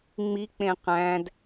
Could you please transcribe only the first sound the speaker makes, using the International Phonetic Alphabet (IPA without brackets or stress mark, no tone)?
ŋ͡m